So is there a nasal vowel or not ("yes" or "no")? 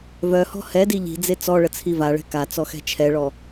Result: no